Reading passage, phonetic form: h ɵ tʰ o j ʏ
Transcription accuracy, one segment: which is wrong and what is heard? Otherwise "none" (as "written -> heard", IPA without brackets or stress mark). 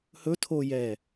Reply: ʏ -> ɛ